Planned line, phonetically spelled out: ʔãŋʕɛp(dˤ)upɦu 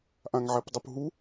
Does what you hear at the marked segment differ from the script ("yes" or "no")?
no